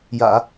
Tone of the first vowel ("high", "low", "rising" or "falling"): low